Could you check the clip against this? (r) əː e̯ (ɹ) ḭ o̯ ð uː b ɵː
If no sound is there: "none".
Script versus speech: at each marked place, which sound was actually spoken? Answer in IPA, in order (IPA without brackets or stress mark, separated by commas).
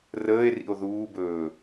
r, r